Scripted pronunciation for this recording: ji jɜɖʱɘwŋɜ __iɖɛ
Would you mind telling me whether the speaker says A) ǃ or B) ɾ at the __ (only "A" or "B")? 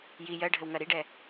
B